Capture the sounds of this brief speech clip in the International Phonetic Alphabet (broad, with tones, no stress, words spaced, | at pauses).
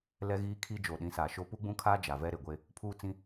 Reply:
lɛ˦ɣiː˦kʰi˦ d͡ʒoː˨ɗĩ˨˦saː˨ʃo˦ pu˦ɡ͡bũ˦kʰaː˦ d͡ʒa˨vɛ˦ɾe˨ ɡʷe˦ | pʰuː˦t͡sĩ˦